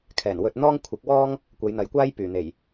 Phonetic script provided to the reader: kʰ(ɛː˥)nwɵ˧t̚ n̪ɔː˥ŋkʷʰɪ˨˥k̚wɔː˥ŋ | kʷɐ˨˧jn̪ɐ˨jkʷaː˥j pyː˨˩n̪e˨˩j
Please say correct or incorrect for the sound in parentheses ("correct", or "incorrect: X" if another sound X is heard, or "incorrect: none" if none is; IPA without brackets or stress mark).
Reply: incorrect: ɛː˨˩